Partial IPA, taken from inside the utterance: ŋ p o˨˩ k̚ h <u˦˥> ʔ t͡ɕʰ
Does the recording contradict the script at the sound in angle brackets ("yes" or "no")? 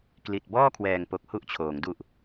no